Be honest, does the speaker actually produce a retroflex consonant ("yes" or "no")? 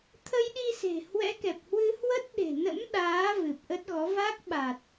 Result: no